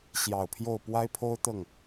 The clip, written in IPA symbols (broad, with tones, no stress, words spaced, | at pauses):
ɕjɑ˨˩ʊ̯pʰjo˥˩ʊ̯ pwa˥ɪ̯pʰo˥ʊ̯ t̪ɤ˥˩ŋ